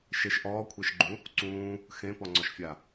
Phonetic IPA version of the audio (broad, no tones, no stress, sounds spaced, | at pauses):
ʃ e ʃ ʔ ɔː kʷʰ e ʃ ɡ͡ǃ ũ | ǀ ũː | x ẽ p ɔ ŋ͡ǀ ɔ ʃ fʲ a